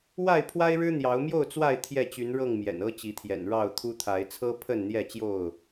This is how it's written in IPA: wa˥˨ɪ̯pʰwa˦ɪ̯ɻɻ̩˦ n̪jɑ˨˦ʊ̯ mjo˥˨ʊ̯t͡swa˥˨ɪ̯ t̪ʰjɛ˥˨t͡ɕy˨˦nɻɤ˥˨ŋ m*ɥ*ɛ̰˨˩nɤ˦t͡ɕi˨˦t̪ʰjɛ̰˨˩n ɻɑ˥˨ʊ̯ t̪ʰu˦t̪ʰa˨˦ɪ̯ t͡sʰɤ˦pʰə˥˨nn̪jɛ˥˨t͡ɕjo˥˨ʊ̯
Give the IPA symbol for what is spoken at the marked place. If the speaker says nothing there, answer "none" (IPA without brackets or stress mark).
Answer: j